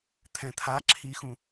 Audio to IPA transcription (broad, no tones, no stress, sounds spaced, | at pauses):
t̪ʰ ɛ̃ t̪ʰ a ǁʰ i x ũ